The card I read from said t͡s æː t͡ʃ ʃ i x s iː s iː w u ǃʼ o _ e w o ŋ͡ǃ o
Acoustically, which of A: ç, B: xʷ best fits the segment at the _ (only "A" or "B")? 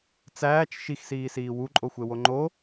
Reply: B